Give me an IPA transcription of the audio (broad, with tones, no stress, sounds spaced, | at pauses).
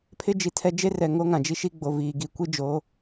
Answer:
pʰ ɪ˦ d͡ʒ i˨ tʰ ɛ˦ d͡ʒ e˦ r ɛ˨ ŋ o˦ ŋ ã˨ d͡ʒ i˦ ʃ i˦ ɡ͡b o˨ v iː˨ ɡ i˨ kʷ i˦ d͡ʒ oː˨˦